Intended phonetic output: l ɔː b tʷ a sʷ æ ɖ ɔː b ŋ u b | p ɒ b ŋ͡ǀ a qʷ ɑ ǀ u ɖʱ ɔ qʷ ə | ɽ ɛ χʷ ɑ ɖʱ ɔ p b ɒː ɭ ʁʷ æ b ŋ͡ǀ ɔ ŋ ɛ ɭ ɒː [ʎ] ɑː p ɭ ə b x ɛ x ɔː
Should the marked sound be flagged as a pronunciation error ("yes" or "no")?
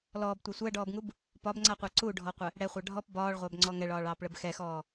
yes